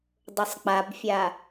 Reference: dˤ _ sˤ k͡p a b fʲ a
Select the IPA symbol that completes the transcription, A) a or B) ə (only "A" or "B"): B